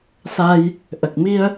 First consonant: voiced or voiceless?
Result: voiceless